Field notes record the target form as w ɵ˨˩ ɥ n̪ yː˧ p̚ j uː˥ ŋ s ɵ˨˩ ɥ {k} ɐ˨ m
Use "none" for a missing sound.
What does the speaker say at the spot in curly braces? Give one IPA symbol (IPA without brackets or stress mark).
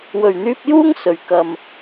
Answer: k